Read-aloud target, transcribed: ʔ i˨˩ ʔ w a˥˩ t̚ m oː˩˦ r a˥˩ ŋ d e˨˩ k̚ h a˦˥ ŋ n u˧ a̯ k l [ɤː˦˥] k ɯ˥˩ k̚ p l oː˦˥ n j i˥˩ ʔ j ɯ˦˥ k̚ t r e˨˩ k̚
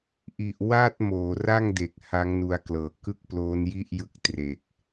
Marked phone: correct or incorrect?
incorrect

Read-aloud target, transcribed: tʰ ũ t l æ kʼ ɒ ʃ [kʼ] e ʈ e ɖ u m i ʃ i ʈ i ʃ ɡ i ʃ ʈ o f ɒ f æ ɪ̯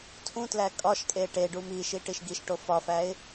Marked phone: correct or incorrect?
correct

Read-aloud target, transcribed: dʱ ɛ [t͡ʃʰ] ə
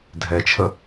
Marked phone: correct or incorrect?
correct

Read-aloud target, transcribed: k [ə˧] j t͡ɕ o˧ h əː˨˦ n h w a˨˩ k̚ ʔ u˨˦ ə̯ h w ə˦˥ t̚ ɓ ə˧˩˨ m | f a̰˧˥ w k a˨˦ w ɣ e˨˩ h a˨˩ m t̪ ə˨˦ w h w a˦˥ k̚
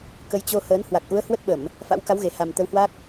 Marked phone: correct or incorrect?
incorrect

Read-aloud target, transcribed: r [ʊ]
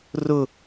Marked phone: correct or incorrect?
correct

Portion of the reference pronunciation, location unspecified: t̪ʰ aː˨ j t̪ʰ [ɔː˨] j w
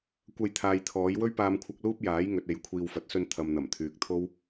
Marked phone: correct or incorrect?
incorrect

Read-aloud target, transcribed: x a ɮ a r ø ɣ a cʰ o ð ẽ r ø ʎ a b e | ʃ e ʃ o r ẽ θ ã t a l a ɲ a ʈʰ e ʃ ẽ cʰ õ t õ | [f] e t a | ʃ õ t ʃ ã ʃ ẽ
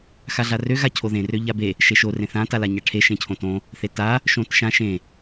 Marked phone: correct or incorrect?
incorrect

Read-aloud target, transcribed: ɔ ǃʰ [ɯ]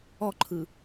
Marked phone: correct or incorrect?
correct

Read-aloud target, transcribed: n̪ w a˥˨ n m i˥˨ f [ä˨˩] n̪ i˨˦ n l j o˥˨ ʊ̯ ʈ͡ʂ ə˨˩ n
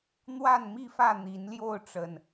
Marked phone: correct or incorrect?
incorrect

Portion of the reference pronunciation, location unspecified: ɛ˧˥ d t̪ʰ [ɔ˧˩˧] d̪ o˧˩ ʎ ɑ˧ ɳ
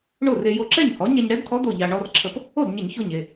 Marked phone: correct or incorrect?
incorrect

